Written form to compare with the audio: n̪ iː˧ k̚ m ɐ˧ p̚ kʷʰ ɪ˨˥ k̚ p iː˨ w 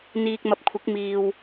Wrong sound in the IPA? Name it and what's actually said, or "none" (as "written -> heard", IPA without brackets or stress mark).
p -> m